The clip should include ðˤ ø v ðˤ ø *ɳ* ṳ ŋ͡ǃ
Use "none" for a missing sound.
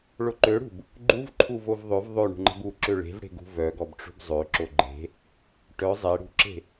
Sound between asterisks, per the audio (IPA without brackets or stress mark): ɳ